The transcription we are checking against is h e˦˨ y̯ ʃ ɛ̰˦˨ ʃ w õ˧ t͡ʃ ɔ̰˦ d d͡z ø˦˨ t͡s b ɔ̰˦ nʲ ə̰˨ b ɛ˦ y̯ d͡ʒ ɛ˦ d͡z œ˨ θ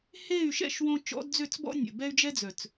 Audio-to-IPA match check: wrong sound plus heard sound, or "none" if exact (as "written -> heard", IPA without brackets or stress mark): θ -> t͡s